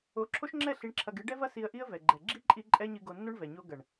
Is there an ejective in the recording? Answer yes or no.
yes